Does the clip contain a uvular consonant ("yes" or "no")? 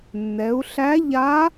no